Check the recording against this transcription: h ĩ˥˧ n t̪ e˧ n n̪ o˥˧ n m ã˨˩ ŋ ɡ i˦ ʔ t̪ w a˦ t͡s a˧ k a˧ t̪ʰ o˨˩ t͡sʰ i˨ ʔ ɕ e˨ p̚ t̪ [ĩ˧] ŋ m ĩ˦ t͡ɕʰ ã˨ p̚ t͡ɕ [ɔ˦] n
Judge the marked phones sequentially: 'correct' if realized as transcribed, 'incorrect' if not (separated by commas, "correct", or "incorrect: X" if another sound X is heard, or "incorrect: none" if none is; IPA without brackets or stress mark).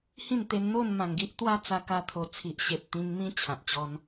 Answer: correct, correct